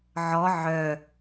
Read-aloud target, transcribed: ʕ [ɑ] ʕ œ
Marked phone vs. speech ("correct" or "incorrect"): incorrect